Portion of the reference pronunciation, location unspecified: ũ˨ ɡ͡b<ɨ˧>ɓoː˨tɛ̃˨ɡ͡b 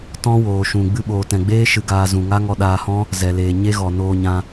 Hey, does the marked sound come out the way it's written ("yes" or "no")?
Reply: yes